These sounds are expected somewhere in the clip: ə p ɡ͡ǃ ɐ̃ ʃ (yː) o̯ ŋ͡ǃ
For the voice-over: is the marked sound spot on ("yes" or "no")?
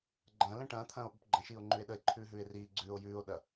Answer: no